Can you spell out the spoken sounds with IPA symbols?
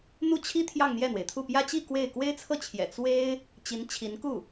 n̪ u˥˩ t͡ɕʰ i˥ t̪ʰ j ɑ˥˧ ŋ n̪ j ɛ˥˩ n̪ w e˩ ɪ̯ t̪ʰ u˥˩ p j ä˥ t͡ɕ i˥˧ k w e˥˩ ɪ̯ k w e˥ ɪ̯ t͡sʰ ɤ˥˩ t͡ɕʰ j ɛ̰˨˩ t͡s w e˥ ɪ̯ | t͡ɕ i˧˥ n t͡ɕʰ i˧˥ n k u˥˩

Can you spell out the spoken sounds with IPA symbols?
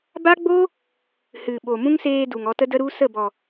b a˦ ɡ͡b o˦ | h ɨ˨ ɓ o˨ m ũ˦ ŋ s eː˧ d u˨ ŋ ɔ˧ t ə˦ d ə˦ ɾ u˦ s ə˦˨ b ɔ˨

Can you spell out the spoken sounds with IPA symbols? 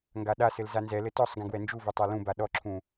ŋ ɡ a ɗ a s ɘ l z a n z ɛ l ɘ t ɔ sˤ ɡ ɛ̃ ɡ w ɛ n d͡ʒ u v ɘ tˤ a l ũ b a ɗ ɔ ǁʰ ũ

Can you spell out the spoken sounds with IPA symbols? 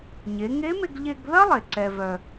ɲ e˩˧ ŋ e˧˥ m e˧ ɡ ʎ e˧ ɡ ð ɐ˥ lˠ e˩ ǀ ɛ˧ v œ˧

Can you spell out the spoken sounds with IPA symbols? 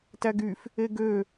t æ ɡ y f | e ɡ ø

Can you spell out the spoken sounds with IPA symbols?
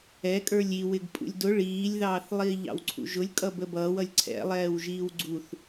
ɛ kʼ ə˞ lʲ i w ɪ ɡ pʼ ṵ lʲ d ʊ ɭ iː lʲ ð ɑː θ lˠ iː ʎ ɑ̰ w ǀʰ ṵ ʒ ʊ lʲ kʼ ʌ b ə b ʌː w ʌ lʲ ǀʰ ɛ̰ lˠ ɛː w ʒ iː w ɡ͡ǀ u θ

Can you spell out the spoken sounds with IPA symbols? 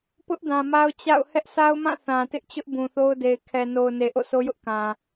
p ʊ˦ ʔ d ã˨ m a˦ ʊ̯ t͡ɕ a̰˦˨ ʊ̯ h ɛ˦ ʔ s a˦ ʊ̯ m ã˦˨ θ ã˨ t ɪ˦ ʔ t͡ɕ ʊ˦ ʔ b ũ˨ θ o˦ ʊ̯ d e˨ ɪ̯ kʰ ɛ˨ n o˨ ʊ̯ n e˨ ʔ o̰˦˨ s o˦ j ʊ˦ ʔ k ã˨

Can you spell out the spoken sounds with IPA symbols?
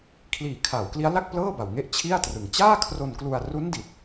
kʰ l iː˨˩ kʰ a˩˦ w k l i˦˥ a̯ l a˥˩ k̚ p l ɤː˥˩ b a˨˩ w ŋ e˦˥ ʔ t͡ɕʰ i˥˩ a̯ t r ɯ˨˩ ŋ t͡ɕ aː˥˩ kʰ r o˧ n k l u˧ a̯ r u˦˥ n d i˨˩ t̚

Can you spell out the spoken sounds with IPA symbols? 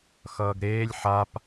x ʌː ɡ ɾ eː lʲ ħ a p

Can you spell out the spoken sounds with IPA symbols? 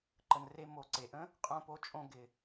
ǃ ə˩ n r e˧ m o˩ ǀ e˩ ʔ ə̃˥ | qʼ õ˧ p o˧ t͡ʃʼ õ˧ ɡ ɪ˩

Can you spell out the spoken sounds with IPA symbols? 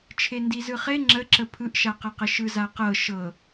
t͡ʃʰ e n d i z ɯ χ e ŋ͡ǁ ə ǁ ə pʰ ɯ ʔ ʃ a q ɤ q ə ʃ ɯ z a q ɤ ʃ ɤ

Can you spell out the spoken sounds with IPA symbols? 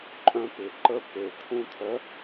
ǃʼ œ̃˦ p ɪ˨ ǃ ə˦ p e˨ t̪ʰ ũ˦ t̪ʰ œ˨˦

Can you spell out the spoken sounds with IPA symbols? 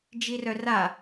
d͡ʒ i r œ r a

